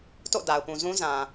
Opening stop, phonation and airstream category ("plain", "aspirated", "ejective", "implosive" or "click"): plain